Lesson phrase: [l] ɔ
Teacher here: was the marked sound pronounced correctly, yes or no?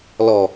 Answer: yes